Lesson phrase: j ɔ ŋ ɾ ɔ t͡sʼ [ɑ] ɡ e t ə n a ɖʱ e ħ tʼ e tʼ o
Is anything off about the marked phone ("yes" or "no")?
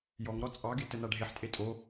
no